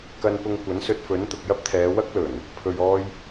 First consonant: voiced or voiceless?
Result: voiceless